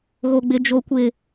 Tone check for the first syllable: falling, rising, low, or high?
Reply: low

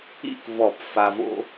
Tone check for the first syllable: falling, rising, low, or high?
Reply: falling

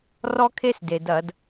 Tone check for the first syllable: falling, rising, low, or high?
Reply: high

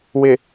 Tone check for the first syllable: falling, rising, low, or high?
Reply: low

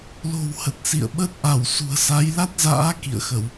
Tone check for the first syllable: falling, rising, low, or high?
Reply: low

